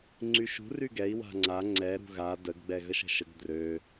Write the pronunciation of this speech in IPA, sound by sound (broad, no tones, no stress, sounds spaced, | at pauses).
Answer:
ŋ͡ǀ y ʃ ṳ r y ɡ ɛ i̯ w a̤ ŋ͡ǀ a ŋ͡ǀ ɛ ɾ ṳ ɣ a d ə ɡ ɡ͡b ɛ ɣ ə ʃ ə̤ ʃ ə ɡ d r ø